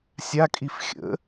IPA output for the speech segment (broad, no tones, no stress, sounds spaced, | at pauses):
sʲ a kʼ i f xʲ ə̰